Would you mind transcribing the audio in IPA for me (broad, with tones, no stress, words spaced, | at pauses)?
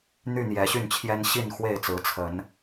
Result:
n̪y˥˨n̪jɛ˨˦ɕy˥˨nt͡ɕʰjɛ˦n ɕi˥˨nxwe˥˨ɪ̯t͡sɹ̩˨˦ t͡sʰə˨˦n